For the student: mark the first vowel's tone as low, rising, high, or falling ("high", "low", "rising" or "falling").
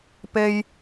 high